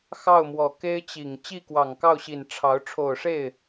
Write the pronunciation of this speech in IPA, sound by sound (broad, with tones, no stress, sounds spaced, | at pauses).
x ɑ˥˩ ʊ̯ m w ɔ˨˩ k e˥ ɪ̯ t͡ɕ i˨˩ ŋ t͡ɕ i˥˩ k w ɑ˨˩ ŋ k ɑ˥˩ ʊ̯ ɕ i˨˩ n ʈ͡ʂʰ ɑ˧˥ ʊ̯ ʈ͡ʂʰ o˨˩ ʊ̯ ʂ e˥˩ ɪ̯